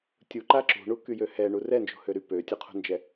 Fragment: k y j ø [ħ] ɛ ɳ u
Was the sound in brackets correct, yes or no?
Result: no